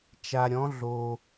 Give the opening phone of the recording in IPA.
t͡ʃ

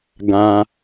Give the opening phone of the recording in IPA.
ɡ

